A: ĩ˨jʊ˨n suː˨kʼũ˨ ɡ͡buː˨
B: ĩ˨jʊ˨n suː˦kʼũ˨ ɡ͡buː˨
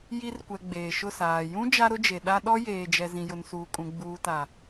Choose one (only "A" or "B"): A